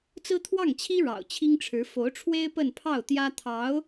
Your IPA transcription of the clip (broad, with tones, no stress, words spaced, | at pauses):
t͡sɹ̩˥t̪ʰwɑ˥˩ŋt͡ɕʰi˥ ɻɑ̰˨˩ʊ̯t͡ɕʰi˥ŋʈ͡ʂʰɻ̩˧˥ fo˧˥ʊ̯ʈ͡ʂʰwe˥ɪ̯ pə˥˧npʰɑ˥˩ʊ̯ t̪jä˥ t̪ʰɑ˧˥ʊ̯